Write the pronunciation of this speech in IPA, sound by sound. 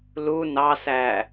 lu nɑsæ

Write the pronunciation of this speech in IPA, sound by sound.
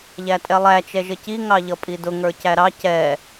ʎætʼɛlˠæ t͡ʃɛʒəci ŋɑʎʌpʼidʊ ŋə˞cæɾɑ cɛ

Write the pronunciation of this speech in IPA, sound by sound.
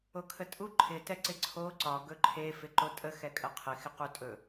okʰətʼu ǃʰɪ tɛǀɪǀʰo ǀɒ ɡɵǃʰe fɪǃotʼə xɛkʼəqʰɪ xɪqutʼɵ

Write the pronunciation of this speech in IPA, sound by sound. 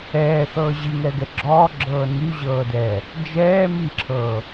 ɛːθɤː ʑiŋɛɡɛ ɡ͡ǁɔɡ͡ǁɤː nyʑɤːdɛː | d͡ʒɛː miǁʰɤː

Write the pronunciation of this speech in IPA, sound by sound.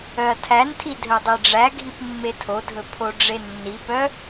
œɐ̯tʰæntʰi dʱœdˤiɖ͡ʐæɡʱip mːetʰodʱɵ pʰoɖ͡ʐenːipœ

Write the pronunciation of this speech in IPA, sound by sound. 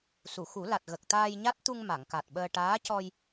su˨˩˨xu˨˩˦la˨˩t̚ ɣə˨˩k̚t̪aː˧jɲa˦˥t̚ t̪u˧ŋ ma˨˩˨ŋka˨˩t̚ɓəː˧ ʈaː˧˥cɔ˧j

